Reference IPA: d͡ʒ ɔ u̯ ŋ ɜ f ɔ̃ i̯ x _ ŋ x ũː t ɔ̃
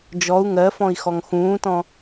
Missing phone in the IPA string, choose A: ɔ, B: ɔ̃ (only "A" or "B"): A